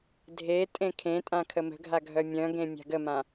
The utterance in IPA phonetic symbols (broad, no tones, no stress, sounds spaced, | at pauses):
dʱ e tʼ ẽ kʰ ẽ tʼ ã kʰ ə m ə̤ ɡʱ a ɡʱ œ mʲ œ̃ ɡ ẽ mʲ a̤ ɡ ə m ã